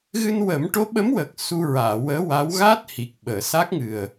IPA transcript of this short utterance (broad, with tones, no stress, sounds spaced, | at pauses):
ɣ ɨ˧ n w ə˨˩˦ m ʈ o˧˥ ɓ ə˧˥ m w əː˨˩ k̚ s u˧ ɹ aː˨˩˨ w əː˧˥ w a˧˥ w ɣ a˦˥ t̚ h i˨˩ k̚ ɓ əː˨˩˨ s a˦˥ k̚ ŋ ɨ˨˩ ə̯